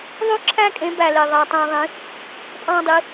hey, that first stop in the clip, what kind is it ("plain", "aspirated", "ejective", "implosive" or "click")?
click